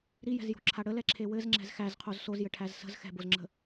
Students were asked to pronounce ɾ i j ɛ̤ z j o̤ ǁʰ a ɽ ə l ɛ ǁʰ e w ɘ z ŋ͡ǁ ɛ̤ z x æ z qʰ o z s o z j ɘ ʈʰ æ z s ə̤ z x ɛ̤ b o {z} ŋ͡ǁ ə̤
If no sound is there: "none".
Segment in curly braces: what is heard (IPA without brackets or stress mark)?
z